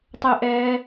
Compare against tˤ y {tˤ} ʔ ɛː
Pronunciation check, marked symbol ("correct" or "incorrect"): incorrect